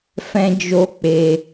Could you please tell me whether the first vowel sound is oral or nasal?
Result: nasal